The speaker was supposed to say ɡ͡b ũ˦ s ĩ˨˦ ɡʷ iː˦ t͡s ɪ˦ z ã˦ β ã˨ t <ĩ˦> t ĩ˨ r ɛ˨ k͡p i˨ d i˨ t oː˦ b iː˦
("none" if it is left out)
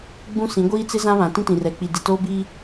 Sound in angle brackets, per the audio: ĩ˦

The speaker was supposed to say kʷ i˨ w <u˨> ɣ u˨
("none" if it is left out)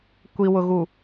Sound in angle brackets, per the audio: ʊ˨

